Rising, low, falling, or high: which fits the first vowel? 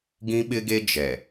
high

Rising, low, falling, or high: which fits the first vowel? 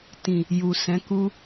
low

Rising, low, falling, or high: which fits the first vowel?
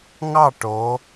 falling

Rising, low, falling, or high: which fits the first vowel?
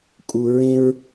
low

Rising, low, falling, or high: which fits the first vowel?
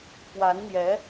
rising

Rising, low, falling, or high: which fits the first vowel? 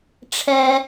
low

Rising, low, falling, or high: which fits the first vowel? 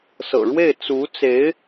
low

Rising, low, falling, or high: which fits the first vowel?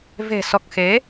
low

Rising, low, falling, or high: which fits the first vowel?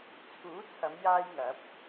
rising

